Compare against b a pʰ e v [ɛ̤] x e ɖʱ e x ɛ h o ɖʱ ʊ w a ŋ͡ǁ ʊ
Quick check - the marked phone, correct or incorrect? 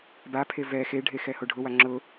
incorrect